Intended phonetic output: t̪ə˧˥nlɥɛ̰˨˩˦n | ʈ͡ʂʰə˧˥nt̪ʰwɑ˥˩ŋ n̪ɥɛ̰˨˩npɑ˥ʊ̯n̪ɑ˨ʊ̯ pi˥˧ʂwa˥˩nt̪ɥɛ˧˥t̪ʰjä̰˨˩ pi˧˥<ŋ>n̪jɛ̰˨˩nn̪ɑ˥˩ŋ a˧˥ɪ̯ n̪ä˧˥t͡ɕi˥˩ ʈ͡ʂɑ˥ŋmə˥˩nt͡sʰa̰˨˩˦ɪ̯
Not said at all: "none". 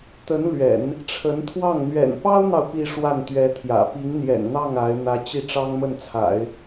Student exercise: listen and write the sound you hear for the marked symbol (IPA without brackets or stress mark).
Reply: ŋ